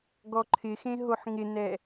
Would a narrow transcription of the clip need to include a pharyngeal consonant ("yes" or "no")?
yes